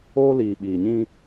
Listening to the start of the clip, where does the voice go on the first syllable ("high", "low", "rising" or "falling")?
high